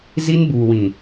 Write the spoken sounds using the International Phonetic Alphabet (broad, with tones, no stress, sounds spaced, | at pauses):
z i˦ n b uː˨ w ĩ˨